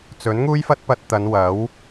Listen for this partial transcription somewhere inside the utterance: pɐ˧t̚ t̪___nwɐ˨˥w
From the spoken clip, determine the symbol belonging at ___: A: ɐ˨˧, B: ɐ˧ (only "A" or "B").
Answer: A